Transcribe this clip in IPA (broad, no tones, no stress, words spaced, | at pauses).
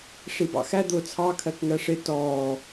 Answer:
ʂibɑ̰xæ d̪ʊːt͡sʰɑ kʰɜkŋɜʂɪ tɔː